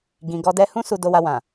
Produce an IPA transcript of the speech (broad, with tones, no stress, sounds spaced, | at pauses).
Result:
ɡ ĩ˨ ɡ ɔ˧ d ɛ˧ h ũ˦ s u˧ d o˧ w a˧ w ã˨